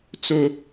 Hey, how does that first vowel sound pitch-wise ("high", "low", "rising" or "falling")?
high